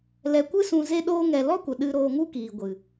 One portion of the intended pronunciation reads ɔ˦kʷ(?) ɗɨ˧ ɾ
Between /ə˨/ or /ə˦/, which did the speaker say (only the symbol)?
ə˨